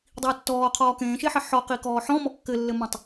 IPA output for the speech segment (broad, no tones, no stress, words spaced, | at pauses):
dˤiːtːɔːqʰɔː kẽːʃeħɘ ħɔqikɔː ħɔ̃mɔ kːɘlːɘmɔ̃tˤ